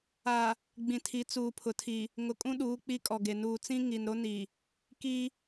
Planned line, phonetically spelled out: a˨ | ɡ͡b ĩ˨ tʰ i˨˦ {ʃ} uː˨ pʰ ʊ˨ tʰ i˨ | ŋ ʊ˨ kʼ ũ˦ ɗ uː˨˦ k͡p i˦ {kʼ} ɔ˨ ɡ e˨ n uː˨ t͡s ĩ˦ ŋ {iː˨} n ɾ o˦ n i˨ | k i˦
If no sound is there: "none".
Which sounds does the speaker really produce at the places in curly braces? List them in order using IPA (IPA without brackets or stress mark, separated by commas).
t͡s, kʼ, i˨